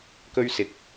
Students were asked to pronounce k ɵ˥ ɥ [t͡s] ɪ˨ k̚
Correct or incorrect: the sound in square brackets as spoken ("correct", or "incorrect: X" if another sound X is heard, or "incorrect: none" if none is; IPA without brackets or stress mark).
incorrect: s